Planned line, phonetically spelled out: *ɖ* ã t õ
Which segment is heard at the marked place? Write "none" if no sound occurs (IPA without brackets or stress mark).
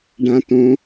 ɖ